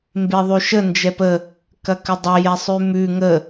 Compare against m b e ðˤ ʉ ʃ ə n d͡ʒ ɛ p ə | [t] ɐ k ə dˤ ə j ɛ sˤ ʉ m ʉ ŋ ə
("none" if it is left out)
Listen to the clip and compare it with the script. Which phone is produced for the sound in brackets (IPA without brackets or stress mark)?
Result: k